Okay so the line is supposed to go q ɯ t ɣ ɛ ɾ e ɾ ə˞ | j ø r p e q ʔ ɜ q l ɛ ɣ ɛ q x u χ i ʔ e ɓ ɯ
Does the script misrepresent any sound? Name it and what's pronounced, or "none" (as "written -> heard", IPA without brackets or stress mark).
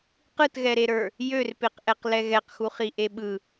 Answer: ɜ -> ɛ